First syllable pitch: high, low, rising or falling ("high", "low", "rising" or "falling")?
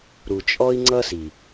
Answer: low